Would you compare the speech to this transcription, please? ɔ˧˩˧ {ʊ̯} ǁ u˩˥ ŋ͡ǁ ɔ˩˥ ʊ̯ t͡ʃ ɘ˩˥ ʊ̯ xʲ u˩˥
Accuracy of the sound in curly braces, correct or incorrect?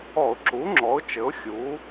correct